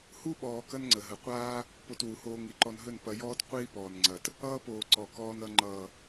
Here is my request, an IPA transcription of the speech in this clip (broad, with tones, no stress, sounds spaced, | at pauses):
h u˦ ɓ ɔː˨ k ɐ˦ n ŋ͡ǀ ə˨ ɦ ə˨ qʷ aː˦ | p o˧ t w u˨ h oː˧ ŋ i˨ ǃ ɔ˧ n ɦ ɵ˦˨ n p ɐ˧ j ɔː˦ t qʷ iː˦ p ɔː˨ n ŋ͡ǀ ɐ˨ t | ʌː˦ p oː˨ ǀ ɔ˨ k ɔː˧ n ʌ˧ ŋ͡ǃ ʌː˨